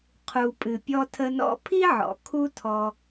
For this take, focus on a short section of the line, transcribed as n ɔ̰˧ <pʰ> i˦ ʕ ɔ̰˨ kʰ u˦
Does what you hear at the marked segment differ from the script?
no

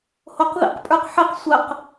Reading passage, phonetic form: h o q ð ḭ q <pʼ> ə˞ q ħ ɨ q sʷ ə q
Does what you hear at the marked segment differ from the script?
no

